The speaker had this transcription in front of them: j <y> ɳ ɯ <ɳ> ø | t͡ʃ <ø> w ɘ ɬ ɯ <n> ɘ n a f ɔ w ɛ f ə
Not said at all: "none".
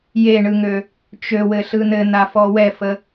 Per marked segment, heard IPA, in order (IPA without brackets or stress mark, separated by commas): e, ŋ, ø, n